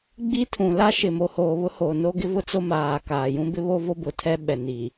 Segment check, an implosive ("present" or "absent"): present